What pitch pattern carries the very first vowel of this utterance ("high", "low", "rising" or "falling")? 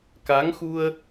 rising